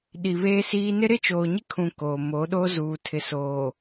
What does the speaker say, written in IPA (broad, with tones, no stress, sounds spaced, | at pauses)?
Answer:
ɗ i˨ β eː˦ s iː˦ n ɪ˦ ɾ ɪ˦ t͡ʃ oː˨ ɲ ɪ˦ kʰ ũ˨ k o˨ m o˨˦ ɗ o˦ z uː˨ tʰ ɪ˨ s oː˨